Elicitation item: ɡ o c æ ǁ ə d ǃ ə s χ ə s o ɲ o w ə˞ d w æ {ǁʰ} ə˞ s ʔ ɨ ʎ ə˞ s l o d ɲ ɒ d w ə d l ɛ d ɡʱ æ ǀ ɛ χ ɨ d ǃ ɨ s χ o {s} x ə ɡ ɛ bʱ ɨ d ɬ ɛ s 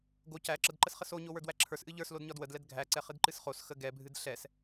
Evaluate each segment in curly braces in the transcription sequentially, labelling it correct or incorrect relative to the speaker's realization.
correct, correct

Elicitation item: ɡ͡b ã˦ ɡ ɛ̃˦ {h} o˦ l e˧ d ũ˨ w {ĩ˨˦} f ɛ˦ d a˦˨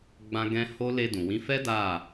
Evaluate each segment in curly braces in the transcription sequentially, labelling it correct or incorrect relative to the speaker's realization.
correct, correct

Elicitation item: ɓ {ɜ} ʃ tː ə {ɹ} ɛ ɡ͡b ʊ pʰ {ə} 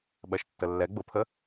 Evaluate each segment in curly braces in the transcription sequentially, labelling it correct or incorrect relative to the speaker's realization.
correct, incorrect: lː, correct

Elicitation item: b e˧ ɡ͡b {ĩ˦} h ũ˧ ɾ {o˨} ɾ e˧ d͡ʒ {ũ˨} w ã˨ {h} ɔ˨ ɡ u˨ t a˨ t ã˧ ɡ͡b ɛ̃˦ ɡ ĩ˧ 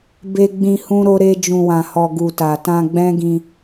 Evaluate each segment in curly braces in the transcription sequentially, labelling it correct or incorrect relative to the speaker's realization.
incorrect: ĩ˧, incorrect: o˧, correct, correct

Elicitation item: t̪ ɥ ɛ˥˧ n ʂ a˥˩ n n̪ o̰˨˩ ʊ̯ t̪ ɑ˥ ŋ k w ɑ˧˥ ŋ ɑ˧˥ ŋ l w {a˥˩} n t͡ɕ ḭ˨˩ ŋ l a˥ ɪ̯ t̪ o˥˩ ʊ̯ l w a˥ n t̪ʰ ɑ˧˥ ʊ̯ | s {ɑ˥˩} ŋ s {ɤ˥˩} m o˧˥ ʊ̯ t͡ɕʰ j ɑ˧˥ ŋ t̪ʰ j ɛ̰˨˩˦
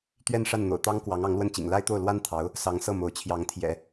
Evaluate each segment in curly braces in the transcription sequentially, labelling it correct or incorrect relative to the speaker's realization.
incorrect: ə˥˩, incorrect: ɑ˧˥, correct

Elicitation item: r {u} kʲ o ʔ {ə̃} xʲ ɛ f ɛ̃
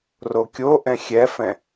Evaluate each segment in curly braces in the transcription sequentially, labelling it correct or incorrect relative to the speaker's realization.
incorrect: o, incorrect: ɛ̃

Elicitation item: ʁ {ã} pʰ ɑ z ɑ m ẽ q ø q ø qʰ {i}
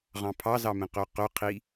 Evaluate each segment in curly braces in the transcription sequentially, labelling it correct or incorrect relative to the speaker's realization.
incorrect: ɑ̃, correct

